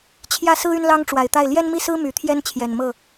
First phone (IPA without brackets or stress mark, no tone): t͡ɕʰ